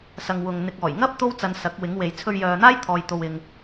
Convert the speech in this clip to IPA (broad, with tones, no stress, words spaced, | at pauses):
sɐ˧ŋ wʊ˨ŋ n̪ɪ˨k̚ɔː˨˩jŋɐ˥p̚ t̪o˥wt͡sɐ˨˧n sɐ˨˥k̚wɪ˨˥ŋwe˨j t͡sʰɵ˧ɥjœː˨n̪aː˥j t̪ʰɔː˨jt̪o˨wɪ˨ŋ